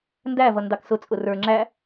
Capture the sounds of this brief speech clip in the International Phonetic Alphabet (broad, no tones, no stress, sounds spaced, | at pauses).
n d æ v ʌ n d ɑ k s ʊ t͡sʼ ʊ r ə˞ ŋ͡ǁ æ